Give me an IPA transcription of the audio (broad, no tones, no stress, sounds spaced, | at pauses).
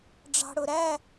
ɖ͡ʐ ɑ̤ ɽ ʊ ɾ æ